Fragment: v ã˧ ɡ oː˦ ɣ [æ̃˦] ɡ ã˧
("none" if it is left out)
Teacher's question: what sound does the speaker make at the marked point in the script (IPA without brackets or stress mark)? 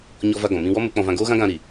ã˦